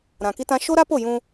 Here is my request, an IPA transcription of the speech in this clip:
ɾ ã˨ k i˦ t ã˦ ʃ o˦ ɾ a˦ p o˦˨ j ũ˦

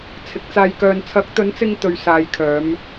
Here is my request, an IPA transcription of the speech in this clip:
t͡sʰ ɪ˨˥ k̚ t͡s aː˧ j k œː˧ n t͡sʰ ɐ˨˥ k̚ t̪ ɵ˨˥ n t͡s ɪ˧ ŋ t̪ ɵ˨˧ ɥ s aː˨˧ j kʰ œː˨˧ m

